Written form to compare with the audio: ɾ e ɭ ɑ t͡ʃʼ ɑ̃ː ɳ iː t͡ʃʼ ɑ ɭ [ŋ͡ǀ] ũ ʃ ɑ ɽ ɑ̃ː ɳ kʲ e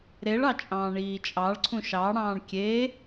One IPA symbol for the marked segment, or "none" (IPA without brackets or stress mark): ǀʰ